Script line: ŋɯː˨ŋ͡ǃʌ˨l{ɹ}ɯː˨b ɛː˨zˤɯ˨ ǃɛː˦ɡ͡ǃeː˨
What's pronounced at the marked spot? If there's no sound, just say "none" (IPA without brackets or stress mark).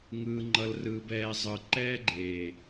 r